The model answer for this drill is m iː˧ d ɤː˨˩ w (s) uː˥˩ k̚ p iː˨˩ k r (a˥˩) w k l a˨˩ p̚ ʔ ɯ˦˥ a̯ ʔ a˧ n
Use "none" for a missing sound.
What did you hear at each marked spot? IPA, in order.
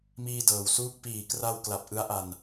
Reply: s, a˧

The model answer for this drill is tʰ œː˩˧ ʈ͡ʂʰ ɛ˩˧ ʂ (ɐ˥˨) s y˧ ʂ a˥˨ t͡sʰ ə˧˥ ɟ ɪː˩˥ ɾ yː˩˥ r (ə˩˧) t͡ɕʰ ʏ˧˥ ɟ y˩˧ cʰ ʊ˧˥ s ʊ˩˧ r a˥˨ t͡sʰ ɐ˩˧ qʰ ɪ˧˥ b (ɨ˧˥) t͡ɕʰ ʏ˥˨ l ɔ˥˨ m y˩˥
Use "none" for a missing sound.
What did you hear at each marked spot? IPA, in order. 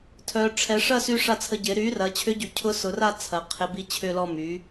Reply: ɐ˥˨, ɐ˩˧, i˧˥

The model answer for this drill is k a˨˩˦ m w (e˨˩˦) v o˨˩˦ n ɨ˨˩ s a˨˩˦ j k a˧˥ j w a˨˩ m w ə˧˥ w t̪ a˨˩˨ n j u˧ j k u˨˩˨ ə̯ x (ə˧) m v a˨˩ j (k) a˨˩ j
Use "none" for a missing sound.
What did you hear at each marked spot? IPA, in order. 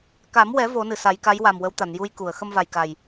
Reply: ɛ˨˩˦, ə˧, k

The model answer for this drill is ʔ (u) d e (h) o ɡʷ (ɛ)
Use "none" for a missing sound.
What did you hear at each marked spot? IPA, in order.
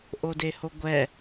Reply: o, h, ɛ

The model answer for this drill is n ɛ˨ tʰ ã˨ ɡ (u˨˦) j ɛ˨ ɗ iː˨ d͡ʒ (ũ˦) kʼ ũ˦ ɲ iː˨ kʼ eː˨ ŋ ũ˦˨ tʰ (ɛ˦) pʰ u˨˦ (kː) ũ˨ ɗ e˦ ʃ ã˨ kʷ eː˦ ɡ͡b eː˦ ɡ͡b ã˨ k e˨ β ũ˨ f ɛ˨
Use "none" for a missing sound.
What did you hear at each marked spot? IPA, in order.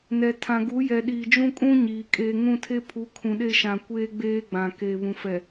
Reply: u˨˦, ũ˦, e˦, kʰ

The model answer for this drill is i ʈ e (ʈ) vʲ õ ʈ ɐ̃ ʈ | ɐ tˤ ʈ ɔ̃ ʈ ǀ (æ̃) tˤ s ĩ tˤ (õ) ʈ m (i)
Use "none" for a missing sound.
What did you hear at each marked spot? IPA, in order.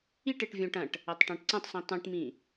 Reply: ʈ, ɐ̃, ũ, ĩ

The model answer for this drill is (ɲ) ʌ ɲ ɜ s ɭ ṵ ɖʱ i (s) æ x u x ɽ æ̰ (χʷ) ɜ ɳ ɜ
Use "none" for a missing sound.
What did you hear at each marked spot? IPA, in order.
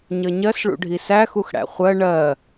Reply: ɲ, s, χʷ

